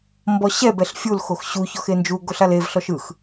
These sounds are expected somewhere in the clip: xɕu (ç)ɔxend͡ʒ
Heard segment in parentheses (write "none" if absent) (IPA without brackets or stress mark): ç